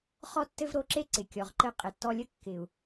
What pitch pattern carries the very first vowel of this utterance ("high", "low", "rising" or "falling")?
high